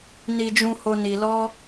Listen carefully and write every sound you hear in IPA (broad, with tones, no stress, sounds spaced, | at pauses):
n i˧ d͡ʒ ũ˧ h o˧ n i˧ l ɔ˦